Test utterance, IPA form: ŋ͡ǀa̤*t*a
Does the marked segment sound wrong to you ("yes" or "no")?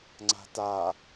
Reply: no